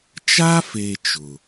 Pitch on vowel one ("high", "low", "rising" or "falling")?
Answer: high